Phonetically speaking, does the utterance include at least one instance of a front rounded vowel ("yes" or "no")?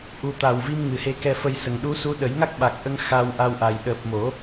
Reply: no